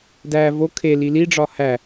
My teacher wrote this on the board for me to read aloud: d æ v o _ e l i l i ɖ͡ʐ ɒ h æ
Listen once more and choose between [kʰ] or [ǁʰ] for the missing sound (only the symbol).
kʰ